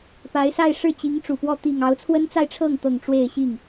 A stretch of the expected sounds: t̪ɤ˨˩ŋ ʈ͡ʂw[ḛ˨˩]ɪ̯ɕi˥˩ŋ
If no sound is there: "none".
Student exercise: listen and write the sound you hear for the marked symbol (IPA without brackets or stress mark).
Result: e˥˧